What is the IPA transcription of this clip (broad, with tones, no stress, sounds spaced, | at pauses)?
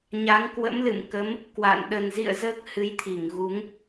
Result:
ɲ a˨˦ ŋ k w ə̰˧˥ m l ɨ̰˧˨ m k ə˨˦ m | k w a̰˧˨ n ɗ ə˨˩ n z ḭ˧˨ ə̯ z əː˦˥ k̚ h ɨ˨˦ j t̪ʰ i˧˩ ŋ ɣ u˨˦ ŋ